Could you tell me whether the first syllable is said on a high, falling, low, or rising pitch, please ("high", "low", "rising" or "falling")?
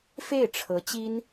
falling